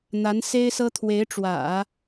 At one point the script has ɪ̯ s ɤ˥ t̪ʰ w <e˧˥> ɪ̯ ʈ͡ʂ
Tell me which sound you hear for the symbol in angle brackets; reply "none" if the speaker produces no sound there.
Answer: e˧˥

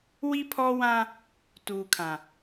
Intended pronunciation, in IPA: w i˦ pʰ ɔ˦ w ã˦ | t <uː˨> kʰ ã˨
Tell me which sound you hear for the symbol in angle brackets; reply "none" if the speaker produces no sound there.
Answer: uː˨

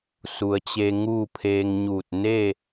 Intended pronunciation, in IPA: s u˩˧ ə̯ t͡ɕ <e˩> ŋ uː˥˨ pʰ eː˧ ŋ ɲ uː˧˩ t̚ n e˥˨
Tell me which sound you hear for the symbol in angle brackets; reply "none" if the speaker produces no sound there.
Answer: e˧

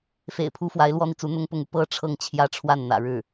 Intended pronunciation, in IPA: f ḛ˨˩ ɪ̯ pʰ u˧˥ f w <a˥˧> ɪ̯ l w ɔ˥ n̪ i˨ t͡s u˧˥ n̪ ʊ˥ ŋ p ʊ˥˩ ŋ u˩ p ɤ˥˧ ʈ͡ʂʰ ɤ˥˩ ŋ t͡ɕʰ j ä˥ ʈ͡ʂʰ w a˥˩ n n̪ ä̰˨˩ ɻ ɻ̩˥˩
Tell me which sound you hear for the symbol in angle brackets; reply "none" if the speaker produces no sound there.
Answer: a˧˥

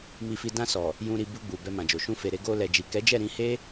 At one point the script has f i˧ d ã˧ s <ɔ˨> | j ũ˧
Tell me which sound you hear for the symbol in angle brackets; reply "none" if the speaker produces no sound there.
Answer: ɔ˨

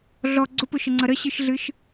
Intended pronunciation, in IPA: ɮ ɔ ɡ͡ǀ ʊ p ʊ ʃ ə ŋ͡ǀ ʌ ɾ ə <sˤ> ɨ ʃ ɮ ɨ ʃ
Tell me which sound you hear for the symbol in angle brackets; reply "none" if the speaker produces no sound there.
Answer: ɕ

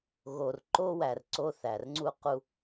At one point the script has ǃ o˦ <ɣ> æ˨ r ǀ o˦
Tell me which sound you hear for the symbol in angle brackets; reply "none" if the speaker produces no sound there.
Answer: w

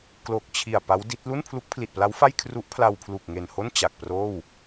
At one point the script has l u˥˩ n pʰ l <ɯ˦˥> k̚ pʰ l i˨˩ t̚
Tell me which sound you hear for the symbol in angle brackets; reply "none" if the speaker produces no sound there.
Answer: u˦˥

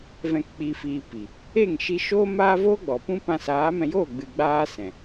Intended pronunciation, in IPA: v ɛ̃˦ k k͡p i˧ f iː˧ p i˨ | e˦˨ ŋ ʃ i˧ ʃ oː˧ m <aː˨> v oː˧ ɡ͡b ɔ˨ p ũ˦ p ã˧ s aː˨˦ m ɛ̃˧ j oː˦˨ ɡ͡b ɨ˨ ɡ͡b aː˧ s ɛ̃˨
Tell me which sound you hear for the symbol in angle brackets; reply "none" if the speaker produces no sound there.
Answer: aː˧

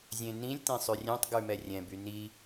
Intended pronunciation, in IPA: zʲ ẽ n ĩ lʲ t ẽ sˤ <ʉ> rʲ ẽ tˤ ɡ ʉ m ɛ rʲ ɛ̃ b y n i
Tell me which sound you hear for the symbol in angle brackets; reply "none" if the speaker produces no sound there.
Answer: ʉ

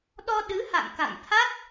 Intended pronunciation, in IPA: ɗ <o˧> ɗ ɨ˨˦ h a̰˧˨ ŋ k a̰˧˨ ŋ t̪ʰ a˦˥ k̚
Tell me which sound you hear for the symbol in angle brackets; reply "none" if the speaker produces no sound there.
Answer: ɔ˧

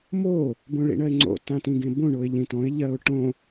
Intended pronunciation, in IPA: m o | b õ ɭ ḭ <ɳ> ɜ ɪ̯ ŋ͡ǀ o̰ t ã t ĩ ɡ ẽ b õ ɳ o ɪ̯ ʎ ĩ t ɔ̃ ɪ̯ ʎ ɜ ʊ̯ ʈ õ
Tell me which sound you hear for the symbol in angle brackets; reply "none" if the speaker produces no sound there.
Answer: ɳ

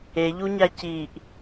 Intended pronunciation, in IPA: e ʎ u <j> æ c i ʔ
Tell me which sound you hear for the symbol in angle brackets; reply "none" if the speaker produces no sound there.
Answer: ɲ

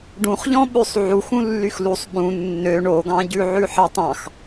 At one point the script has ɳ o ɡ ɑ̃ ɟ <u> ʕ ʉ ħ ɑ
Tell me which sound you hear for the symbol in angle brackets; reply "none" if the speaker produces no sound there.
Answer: ʉ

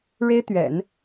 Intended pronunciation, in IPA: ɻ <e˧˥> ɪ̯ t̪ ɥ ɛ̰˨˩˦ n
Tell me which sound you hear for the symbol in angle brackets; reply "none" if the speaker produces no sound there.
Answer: e˥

